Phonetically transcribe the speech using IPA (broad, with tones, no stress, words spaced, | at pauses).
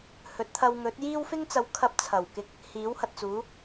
hɵ˨˥t̚t̪ʰɐ˧wŋɵ˨˥t̚jiː˥w fɪ˥ŋt͡sɐ˨˥w kʰɐ˧p̚t͡sʰɐ˨˩wkɪ˧k̚ | hiː˨˥whɐ˨t̚ t͡suː˨˥